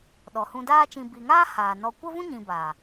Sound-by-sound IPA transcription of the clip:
ɗɔ˨hũ˧daː˦t͡ʃĩ˧ bi˨ŋaː˦ haː˨ nɔ˧ kʷə˦vũ˦ɲĩ˨ ba˨

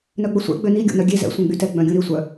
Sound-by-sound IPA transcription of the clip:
nœɡ͡bəsʷɛ̰ ɡ͡bøni ɡʲo̰nœɡʲe zɛ̰ sʷœ̃ɡ͡bytɛ ɡ͡bœ̃ɡʲũɾi sʷœ

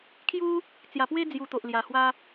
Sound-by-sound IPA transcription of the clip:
kʰju˦ | t͡sja˨˩pwe˦ d͡zju˧t̪o˨ʔlja˨˩hwa˦

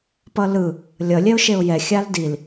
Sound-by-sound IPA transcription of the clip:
pʌlɯ | lʲʌ lʲɛʊ̯ʃeʊ̯jɛ xʲaldil

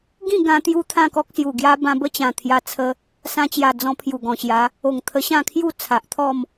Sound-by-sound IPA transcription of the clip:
ɡĩ˥˧ ɡã˧ t̪ju˧ t̪ʰã˥˧kɔ˦k̚sju˨˩ɡja˦ bã˧bə˥˧t͡ɕã˨˩ t̪ʰja˧t͡sʰə˧ | sã˧t͡ɕja˨˩d͡zɔ̃˧ pʰju˨˩ɡɔ̃˨˩ɕja˨˦ | o˨˩ŋt̪ʰə˧ɕã˥˧kʰju˥˧ t͡sʰa˨ʔt̪ʰɔ˥˧m

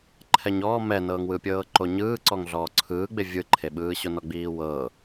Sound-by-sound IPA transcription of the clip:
ǃʰɛɲɔː mɛnɤːŋwɯpʲɤː ǃoɲɯː ǀɔŋɮɔːǀʰɯːɡ͡be vʲɯǃʰeɓɯːɕo nɔɡ͡biːwɤ

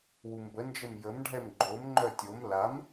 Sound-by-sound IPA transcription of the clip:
wumbənd͡ʒəm jəmɖʱɛm ɡ͡ǃomŋ͡ǃœ tʲom lam

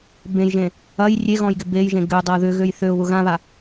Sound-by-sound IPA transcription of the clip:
bẽjʒẽ | ɐj rʲeɣɔ̃jɡɪ bejʒẽ ɡʏʊ̯dˤɐʊ̯ ðʏɣøj θøʊ̯βʊ ɣãβa

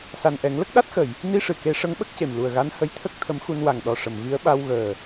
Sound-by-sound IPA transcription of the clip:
sa˨˩nʔɛ˨˩˦ŋlə˦˥k̚ ɗa˦˥t̚xə˨˩˨j | ni˧ʂɨ˨˩ke˨˩˦ ʂə˧˥ŋɓə˦˥k̚ce˨˩mlu˨˩ə̯ ɣa˧˥nhə˧˥jt̪ʰə˦˥k̚ t̪ʰə˧˥mxu˧n wa˨˩ŋɗɔ˨˩ ʂə˨˩˨mvi˧˥ə̯ ɓa˧wɣəː˨˩

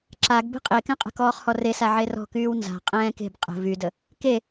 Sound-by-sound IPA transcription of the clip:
ǁaɡ be̤qʼekɛ̃qʼə̤ kɔːχhɔresa ʕerɔ̤kyːw nza̤ qʼɛ̃ːke̤b qʼə̤ vydə | ke

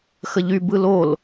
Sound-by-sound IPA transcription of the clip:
xəʎy bɯlol

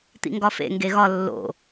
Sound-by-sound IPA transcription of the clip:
t̪ḭŋɡɒfḛ ŋɡeɣɒ lːo̰

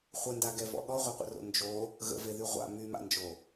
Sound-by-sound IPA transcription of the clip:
χʷəndaɡɛvɔ̰ ɠɔʁʷœqʷə̰ro̰ nd͡ʒo | ɣə̰veðy ʁʷa̰ myma̰nd͡ʒo

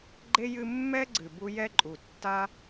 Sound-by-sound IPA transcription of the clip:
ɡ͡ǃe˦ jɨ˧mːɛ˦ ɡ͡ǀɨ˨bu˧ jɛ˦ǃʼu˨ tːa˦

